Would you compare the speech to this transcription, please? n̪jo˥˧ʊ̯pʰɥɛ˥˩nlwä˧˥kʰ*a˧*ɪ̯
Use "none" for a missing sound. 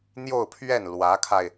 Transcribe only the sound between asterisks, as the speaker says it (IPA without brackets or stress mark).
a˧